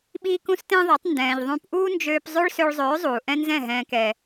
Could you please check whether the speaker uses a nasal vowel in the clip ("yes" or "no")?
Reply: yes